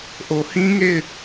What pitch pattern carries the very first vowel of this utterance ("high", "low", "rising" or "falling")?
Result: low